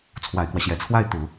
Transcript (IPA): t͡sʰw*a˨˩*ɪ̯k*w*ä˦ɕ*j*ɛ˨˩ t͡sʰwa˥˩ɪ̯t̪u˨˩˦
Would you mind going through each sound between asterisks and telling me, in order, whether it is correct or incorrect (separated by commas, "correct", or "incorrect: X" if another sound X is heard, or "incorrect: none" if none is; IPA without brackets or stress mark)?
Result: correct, correct, correct